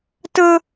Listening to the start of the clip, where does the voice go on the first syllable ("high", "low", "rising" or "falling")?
high